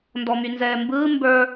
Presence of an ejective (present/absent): absent